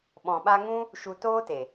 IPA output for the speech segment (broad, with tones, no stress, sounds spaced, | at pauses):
ɓ ɔ̃˨ ɓ a˧ ŋ ũ˦ | ʃ u˨ t oː˦ t e˨